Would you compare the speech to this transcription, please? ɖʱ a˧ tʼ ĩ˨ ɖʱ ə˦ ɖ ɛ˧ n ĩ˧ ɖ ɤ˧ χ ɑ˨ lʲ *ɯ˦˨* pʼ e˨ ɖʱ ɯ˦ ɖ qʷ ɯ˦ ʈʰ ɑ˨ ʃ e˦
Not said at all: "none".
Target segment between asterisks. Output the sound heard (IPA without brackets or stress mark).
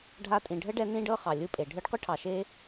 ɯ˧